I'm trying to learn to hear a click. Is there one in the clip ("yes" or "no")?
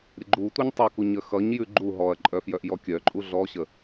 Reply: yes